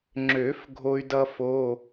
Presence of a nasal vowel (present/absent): absent